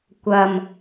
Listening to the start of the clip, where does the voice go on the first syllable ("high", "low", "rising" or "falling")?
low